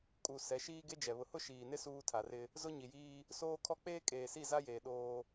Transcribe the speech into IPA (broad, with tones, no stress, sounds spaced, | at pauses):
kʼ u˨ s ɛ˨˦ ʃ iː˦ ɡ e˦ d͡ʒ ɛ˨ β ʊ˨ h ʊ˦ ʃ iː˨ n ɪ˦ s uː˦ tʰ a˨ r ɪ˦ | z ʊ˦ ɲ i˨ j iː˦ | s oː˦ kʰ ɔ˦ k͡p eː˦ kʼ eː˨ s i˦˨ z a˦ j eː˨ ɗ oː˦